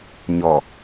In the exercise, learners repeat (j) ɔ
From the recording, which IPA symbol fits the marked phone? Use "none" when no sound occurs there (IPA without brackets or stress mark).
ɲ